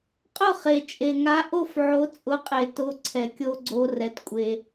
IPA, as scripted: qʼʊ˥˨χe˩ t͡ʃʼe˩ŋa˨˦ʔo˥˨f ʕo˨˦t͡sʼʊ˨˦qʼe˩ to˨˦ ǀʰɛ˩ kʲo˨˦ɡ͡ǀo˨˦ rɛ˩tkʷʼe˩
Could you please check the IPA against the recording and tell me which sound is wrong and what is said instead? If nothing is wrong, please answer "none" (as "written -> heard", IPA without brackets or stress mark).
none